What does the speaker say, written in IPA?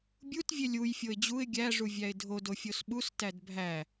bʲ u t vʲ e lʲ u j fʲ o ɪ̯ d͡ʑ u ɪ̯ ɡʲ æ ʐ u vʲ æ ɪ̯ dʱ o d o fʲ o s ɓ u s t æ d bʱ æ

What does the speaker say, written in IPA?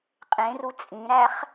qʼ ẽ r u t͡sʼ ĩ ɾ æ χ

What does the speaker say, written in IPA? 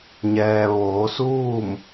ɲ ɛː˩ ʋ oː˩˧ s uː˥˨ m

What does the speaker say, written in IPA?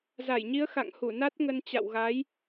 z a˧˩ j ɲ i˨˦ ə̯ x a̰˧˨ ŋ h u˧˩ n a˦˥ t̚ ŋ ə˧ n t͡ɕ a̰˧˨ w ɣ a˨˦ j

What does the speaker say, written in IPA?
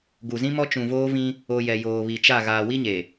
ɡ u˨ z ĩ˦ m ɔ˦ t͡ʃ ũ˨ v oː˦ v ĩ˦ | o˨ j ɛ˨ j oː˨ β i˨ t͡ʃ a˦˨ ɣ aː˨ w i˦ ɲ e˨

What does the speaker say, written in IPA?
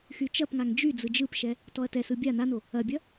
x y t͡ʃ ɐ p ŋ a ŋ d͡ʒ y d͡z ɯ d͡ʒ ɯ p ʃ ɛ | t ɔ ɐ̯ t ɛ s ɯ bʲ a n a n o | ɐ bʲ ɐ

